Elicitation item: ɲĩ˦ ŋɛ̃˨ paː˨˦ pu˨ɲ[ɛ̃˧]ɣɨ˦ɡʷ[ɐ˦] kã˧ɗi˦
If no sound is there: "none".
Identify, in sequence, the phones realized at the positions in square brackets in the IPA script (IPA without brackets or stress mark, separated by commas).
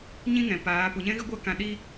ɛ̃˦, a˦